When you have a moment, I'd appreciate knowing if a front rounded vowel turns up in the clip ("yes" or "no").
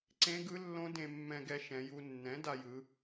no